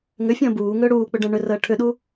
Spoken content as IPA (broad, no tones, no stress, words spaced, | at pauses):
ŋʏfʲə̃ː buːŋʏː ɽuːk͡pʏɖə̃ː ɳʏrəː ʈʰʏɗu